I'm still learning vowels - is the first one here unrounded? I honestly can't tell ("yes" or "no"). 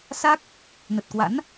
yes